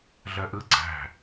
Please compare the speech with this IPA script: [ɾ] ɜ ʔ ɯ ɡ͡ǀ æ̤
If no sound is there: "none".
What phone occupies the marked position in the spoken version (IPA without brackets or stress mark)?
ɮ